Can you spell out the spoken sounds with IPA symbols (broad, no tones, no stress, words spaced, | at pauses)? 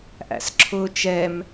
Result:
ʔæ̰sǁʰʊːt͡ʃɛm